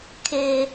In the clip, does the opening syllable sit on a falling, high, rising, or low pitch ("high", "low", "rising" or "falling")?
low